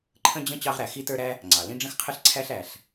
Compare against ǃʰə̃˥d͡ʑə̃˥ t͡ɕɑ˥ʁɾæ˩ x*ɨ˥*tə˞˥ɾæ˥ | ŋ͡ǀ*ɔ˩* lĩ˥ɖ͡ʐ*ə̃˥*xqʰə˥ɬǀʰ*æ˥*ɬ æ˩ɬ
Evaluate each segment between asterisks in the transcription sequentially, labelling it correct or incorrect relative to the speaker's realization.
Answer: incorrect, incorrect, correct, correct

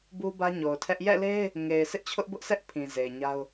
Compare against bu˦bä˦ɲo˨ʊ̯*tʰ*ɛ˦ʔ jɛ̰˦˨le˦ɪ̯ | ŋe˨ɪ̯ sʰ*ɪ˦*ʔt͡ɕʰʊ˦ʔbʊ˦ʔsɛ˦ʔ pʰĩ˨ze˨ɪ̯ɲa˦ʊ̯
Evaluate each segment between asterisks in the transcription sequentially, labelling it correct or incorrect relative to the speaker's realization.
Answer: correct, correct

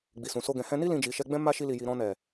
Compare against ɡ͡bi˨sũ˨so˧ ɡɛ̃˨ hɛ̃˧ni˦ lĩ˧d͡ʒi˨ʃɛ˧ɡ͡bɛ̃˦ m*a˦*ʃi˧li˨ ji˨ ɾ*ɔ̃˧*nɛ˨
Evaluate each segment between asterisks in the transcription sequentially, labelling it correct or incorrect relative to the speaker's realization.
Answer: correct, correct

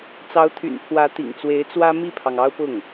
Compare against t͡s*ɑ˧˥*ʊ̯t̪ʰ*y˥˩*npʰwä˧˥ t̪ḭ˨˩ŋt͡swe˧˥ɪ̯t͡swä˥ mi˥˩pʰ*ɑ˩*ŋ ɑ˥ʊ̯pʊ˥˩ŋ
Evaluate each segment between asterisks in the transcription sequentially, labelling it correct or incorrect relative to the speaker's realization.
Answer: correct, incorrect, correct

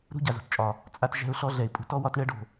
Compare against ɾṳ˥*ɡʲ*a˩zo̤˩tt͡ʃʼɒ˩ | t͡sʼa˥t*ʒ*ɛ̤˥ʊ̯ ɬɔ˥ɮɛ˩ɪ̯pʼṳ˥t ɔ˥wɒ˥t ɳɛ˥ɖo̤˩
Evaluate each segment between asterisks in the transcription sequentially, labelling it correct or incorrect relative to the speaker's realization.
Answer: incorrect, correct

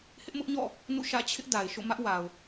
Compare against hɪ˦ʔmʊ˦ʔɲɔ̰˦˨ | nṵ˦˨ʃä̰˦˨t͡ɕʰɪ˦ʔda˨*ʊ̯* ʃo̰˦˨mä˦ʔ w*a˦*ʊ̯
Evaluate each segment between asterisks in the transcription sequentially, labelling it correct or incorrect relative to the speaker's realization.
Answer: incorrect, incorrect

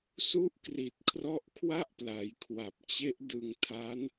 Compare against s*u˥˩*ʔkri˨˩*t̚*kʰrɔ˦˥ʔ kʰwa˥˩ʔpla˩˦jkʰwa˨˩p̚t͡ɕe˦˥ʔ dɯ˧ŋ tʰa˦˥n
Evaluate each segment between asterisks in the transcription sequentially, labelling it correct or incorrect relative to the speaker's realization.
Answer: incorrect, correct

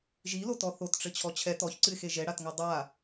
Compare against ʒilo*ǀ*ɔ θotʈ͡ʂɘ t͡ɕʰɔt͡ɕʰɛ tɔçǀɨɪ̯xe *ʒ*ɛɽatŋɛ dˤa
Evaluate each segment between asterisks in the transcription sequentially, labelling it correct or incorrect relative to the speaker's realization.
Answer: incorrect, correct

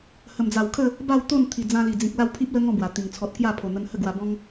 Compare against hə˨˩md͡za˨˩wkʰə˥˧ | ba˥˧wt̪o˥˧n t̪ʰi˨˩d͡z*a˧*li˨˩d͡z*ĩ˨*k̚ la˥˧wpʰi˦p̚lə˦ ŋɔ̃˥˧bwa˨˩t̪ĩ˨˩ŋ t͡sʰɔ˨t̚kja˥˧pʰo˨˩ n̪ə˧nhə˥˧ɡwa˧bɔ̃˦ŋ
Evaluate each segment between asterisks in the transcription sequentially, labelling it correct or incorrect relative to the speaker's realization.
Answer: incorrect, correct

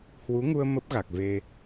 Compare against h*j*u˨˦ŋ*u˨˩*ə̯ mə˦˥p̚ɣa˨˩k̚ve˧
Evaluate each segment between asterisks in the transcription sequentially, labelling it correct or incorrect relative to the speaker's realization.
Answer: incorrect, incorrect

